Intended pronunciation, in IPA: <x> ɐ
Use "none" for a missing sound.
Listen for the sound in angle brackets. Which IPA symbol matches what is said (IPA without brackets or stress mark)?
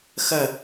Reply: x